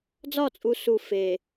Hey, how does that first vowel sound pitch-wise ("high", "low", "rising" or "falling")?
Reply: falling